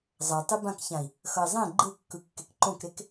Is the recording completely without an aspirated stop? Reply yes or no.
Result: yes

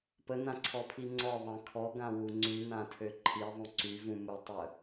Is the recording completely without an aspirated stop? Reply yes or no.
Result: no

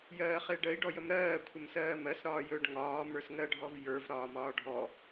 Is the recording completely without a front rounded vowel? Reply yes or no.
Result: yes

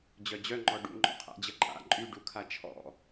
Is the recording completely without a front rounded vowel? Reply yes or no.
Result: no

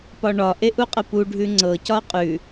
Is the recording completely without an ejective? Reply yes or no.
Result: no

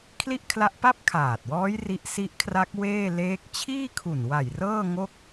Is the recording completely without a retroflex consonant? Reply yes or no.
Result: yes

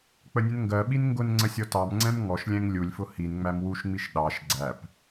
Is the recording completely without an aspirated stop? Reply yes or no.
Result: yes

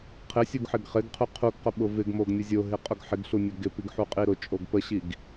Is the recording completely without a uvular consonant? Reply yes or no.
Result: no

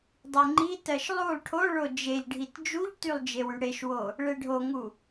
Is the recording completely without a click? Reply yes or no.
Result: no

